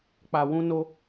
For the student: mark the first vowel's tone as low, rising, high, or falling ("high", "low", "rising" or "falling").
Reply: low